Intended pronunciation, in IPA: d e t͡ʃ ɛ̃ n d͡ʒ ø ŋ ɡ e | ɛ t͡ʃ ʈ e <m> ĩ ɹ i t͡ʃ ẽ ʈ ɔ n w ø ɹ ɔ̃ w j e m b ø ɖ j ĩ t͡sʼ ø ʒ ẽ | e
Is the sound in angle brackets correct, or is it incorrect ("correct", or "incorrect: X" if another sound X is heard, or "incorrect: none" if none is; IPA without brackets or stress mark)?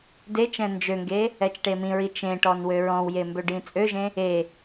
correct